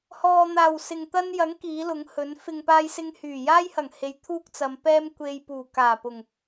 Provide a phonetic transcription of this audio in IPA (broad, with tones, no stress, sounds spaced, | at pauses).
h ɔː˨ n̪ aː˨˩ w s ɪ˨ ŋ t̪ ɐ˥ n j ɐ˨˥ ŋ k iː˨˥ l ʊ˨˥ ŋ h ɵ˨˥ n f ɪ˨ ŋ p aː˧ j s ɪ˧ ŋ h yː˨˩ j aː˥ j h ɐ˨˩ ŋ h e˨˧ j t̪ʰ uː˥ k̚ t͡s ɐ˨˧ m p ɛː˥ m kʷ e˧ j p uː˨˩ k aː˨˩ p ʊ˨˩ ŋ